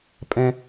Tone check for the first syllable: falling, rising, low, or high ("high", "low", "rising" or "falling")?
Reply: high